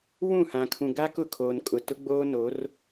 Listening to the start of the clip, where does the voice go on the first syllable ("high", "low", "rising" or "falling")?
falling